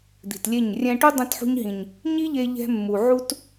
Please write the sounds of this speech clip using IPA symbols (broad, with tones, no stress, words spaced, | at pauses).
d̪i̤˨tlʲe˦˨ɲ rʲɛ̃˧ʈu˦ dˤĩ˧tħṳ˧ɲɦĩ˨ɲ | ɲi˦ʎe˧ ʎɛ̤˧mːu˨ ʕu˧t